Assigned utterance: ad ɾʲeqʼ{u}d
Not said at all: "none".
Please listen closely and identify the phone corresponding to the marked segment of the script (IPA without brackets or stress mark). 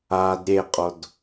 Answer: o